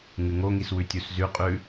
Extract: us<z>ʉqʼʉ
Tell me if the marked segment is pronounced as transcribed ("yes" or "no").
yes